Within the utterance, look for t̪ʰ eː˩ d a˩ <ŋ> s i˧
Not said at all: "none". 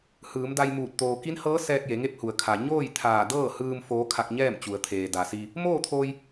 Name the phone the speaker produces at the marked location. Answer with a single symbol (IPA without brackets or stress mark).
none